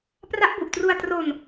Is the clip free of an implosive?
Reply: yes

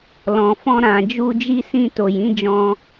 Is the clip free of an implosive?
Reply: yes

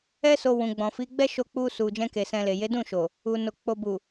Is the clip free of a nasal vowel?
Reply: no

